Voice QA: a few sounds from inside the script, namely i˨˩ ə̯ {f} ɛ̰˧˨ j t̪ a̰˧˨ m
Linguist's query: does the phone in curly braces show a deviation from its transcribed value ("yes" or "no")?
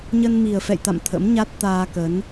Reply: no